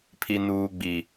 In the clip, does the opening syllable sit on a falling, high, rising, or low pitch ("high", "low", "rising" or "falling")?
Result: high